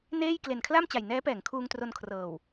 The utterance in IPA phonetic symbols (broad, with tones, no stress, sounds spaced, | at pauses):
n eː˥˩ j k l e˨˩ n kʰ l a˥˩ m t͡ɕ a˨˩ j n ɛː˦˥ p ɛː˩˦ ŋ kʰ uː˧ ŋ t r o˧ n kʰ r ɤː˨˩ w